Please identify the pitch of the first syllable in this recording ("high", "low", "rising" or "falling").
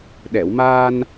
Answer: low